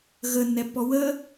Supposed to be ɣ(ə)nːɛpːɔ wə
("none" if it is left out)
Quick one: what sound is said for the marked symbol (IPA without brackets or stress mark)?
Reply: ə